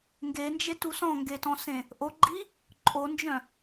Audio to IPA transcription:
ŋ ɡ e n d͡ʒ e t u s ɔ̃ ŋ ɡ e t ɔ̃ s ẽ | ʔ o ɡ͡ǃ i | ǃʼ o n d͡ʒ œ̃

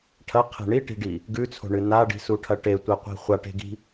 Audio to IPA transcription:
ʈʰ ɐ qʰ e̤ ɳ i ʈ i̤ ɖ i | ɡ ʉ t͡sʰ o̤ ɳ ɨ n a ɖ i̤ s u ʈʰ ɐ ʈ e tʷ e qʷ i̤ χʷ a ʈ e̤ ɡ i̤

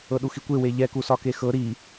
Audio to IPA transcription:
ɤ ɗ u x i kʷ e w e ʎ ɛ k u s ɒ k e x ɤ ɾ i

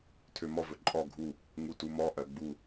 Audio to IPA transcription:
tʰ ø m ɔ v ɵ ǃʼ ɔ ɡʱ u | ŋ u t u m ɔ ʔ ɜ ɡ͡b u

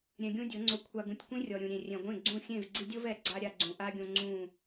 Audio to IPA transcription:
ɾʲ ɛ̃˧ ɡʲ ũ˦ dʲ ɤ˨˦ ŋ͡ǀ o˧ kʷʰ a˨ ɡ ũ˨ tʲ kʷ ĩ˧ rʲ ɔ˨ ɾʲ ũ˨ ɾʲ ẽ˨ rʲ ɛ̃˨ ɡʷ ẽ˦˨ ɡ͡ǀ ũ˦˨ xʲ ẽ˦˨ v ɡ͡ǀ i˧ dʲ ɤ˦ v ɛ˧ ɡ͡ǀ a˦ ɾʲ a˧ ɡ͡ǀ ũ˨ ʔ a˦ ɡʲ õ˧ ŋ͡ǀ ũ˦˨

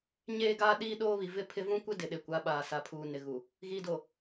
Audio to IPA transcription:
ɲ eː˦ ɡ aː˦ ɗ iː˦ ɗ oː˦ β i˨ v ɪ˦ pʰ ɪ˦ v ũ˦ kʷ ɪ˦ d ɪ˨ ɗ e˨ kʷ a˨˦ ɓ aː˨ s a˨ pʰ uː˨ n ɪ˨ ɣ u˨ | ɣ iː˨ d o˨

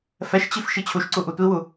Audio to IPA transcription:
f ɛ ʃ t͡ɕ i f ʃ i t͡ɕʰ u ʃ ǀ u ʔ u tʷ i w u

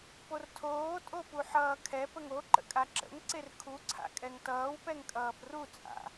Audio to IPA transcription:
p o r tʰ oː tʼ o p u ħ ʌː kʰ ɛ p ə ŋ o ǃ ə̰ kʼ a ǁ ə̰ ŋ ǀ e r kʰ u ǀʰ a̰ kʼ ɛ ŋ t ʌː w p ɛ ŋ kʼ ʌː p r u t͡sʼ a̰

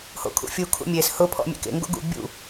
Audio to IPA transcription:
h o̰ kʰ ṵ fʲ u kʰ ṵ mʲ e s h ʊ pʰ ɔ̰ mʲ ḛ k ḛ ŋ ɡ o̰ ɡ ṵ bʲ ṵ

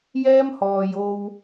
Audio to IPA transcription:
j ɛː˥ m h ɔː˨ j o˧ w

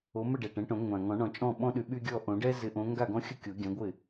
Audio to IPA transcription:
o˨˦ m ə˥˩ ɖ ɛ˨˩ ʈ ɛ̃˨˦ ʈ õ˨˩˦ ŋʷ ã˨˩ ŋ ɔ̃˨˩˦ ɳ ɔ̃˨˩ t͡ʃʼ ɔ̃˥˩ ɓ ɔ̃˦ ɗ y˨˦ ɓ y˦ ɡʲ ɔ˥˩ ʔ õ˨˩˦ ɖ ɛ˦ z ɪ˨˦ ʔ õ˨˦ ŋ ɡ a˥˩ ɡ ɔ̃˦ xʲ ə˥˩ kʲ o˨˩˦ ɡʲ ã˨˦ ɡʷ ɪ˥˩

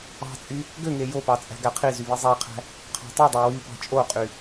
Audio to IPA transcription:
ɑ̤ t͡sʼ y | ɡ ø ŋ e j o p ɑ t͡sʼ æ̤ ɡ æ qʰ i z y β i zˤ æ qʰ æ̤ | qʰ ɑ̤ tˤ i dˤ ø w y p ɑ̤ t͡ʃʼ o qʼ y

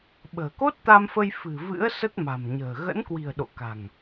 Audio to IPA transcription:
ɓ ə̤ː˨˩ k o˦˥ t̚ t̪ a˧ m f ə˧ j f ɨ̤˨˩ v ɨ̰˧˥ ə̯ s ə˦˥ t̚ m a̤˨˩ m ɲ ə̤ː˨˩ ɣ ə̰˧˥ n k w i̤˨˩ ə̯ ɗ o̰˧˨ k a̤˨˩ ŋ

